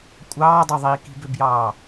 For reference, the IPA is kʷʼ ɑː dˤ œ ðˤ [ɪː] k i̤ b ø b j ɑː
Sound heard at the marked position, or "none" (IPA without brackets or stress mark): iː